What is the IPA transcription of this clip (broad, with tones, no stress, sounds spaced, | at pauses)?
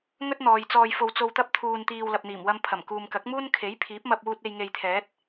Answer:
ŋ ɵ˥ t̚ n̪ ɔː˨ j t͡s ɔː˧ j f o˧ w t͡s o˧ w t̪ ɐ˥ p̚ t̪ʰ uː˧ n t̪ iː˧ w l ɐ˨ p̚ n̪ iː˨˩ m w ɐ˧ m pʰ ɐ˨˩ m k uː˨ m k ɐ˨˥ k̚ m uː˥ n kʰ e˨˥ j pʰ iː˨˥ p̚ m ɐ˧ p̚ w uː˧ t̚ e˧ j ŋ e˧ j t̪ʰ ɛː˨˥ t̚